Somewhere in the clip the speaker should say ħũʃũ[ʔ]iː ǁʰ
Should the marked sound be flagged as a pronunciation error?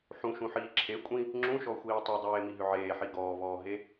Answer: yes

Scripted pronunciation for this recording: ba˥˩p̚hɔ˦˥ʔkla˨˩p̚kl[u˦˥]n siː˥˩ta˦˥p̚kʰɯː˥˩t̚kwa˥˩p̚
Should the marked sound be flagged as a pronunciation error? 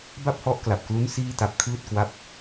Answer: no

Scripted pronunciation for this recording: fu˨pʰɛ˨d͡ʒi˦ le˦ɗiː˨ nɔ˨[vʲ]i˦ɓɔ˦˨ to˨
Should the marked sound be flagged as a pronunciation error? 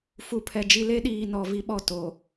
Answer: yes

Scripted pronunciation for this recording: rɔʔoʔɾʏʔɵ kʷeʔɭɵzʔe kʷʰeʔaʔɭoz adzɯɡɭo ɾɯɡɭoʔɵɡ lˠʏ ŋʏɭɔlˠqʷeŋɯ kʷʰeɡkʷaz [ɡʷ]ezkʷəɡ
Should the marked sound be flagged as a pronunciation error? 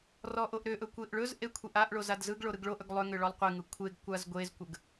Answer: no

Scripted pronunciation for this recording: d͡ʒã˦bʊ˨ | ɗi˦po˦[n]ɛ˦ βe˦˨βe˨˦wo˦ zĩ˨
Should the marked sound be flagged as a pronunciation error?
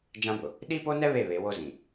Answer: no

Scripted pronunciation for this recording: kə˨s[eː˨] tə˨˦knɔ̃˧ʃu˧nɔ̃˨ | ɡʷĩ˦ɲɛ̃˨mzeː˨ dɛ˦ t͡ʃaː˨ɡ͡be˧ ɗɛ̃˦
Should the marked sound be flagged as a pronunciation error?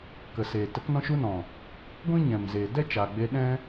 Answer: no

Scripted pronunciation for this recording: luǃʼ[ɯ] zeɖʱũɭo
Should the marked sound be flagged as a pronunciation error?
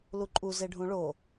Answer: yes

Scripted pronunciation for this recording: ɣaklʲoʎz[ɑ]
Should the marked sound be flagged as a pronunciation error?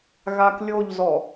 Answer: yes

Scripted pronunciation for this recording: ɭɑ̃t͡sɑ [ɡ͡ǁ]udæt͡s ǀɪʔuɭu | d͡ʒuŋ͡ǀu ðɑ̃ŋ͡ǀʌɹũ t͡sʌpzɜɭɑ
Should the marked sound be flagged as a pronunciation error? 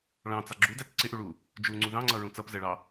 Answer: no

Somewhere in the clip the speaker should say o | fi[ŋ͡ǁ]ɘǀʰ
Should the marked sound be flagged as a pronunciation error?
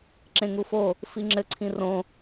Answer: no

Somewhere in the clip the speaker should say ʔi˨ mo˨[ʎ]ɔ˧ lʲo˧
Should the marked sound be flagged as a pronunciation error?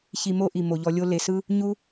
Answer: no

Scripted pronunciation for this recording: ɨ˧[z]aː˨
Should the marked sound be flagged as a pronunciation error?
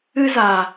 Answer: no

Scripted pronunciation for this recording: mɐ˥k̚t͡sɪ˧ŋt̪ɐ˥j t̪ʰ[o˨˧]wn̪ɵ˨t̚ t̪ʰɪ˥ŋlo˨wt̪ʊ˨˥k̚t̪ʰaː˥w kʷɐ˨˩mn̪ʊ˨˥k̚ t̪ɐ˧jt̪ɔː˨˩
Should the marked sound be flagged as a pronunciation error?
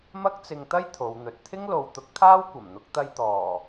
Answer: no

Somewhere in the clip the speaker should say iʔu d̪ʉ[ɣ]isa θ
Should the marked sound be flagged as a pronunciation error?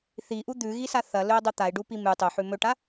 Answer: no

